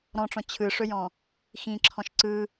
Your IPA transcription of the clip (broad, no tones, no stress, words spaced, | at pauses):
ɾɔ̃ʈ͡ʂɔ̃ t͡ɕʰɯʂɵjɔ̃ | xĩǁʰɔ̃ʃ ǀɯ